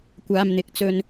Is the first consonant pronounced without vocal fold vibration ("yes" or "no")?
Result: yes